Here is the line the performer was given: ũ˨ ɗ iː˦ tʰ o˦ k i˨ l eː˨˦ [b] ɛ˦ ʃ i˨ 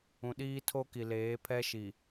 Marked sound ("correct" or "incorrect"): incorrect